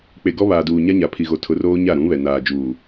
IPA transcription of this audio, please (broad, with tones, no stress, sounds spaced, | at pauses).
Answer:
k͡p e˨ ɡ ɔ˦ β aː˨ d uː˨ ɲ a˦ ɲ a˨ pʰ i˨ ɣ o˨ tʰ ʊ˨˦ r oː˦ ɲ a˦˨ ɾ ũ˨˦ β ɛ˨ n aː˨ d͡ʒ uː˨